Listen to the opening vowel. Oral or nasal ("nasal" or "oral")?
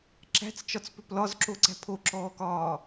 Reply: oral